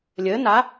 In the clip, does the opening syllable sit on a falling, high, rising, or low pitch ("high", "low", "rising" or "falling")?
rising